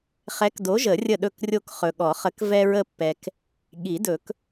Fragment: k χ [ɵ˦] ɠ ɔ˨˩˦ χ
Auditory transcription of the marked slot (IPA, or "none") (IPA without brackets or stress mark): ɵ˨